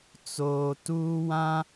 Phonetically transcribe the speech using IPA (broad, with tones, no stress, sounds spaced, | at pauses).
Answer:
t͡s oː˨ t uː˦ w ã˦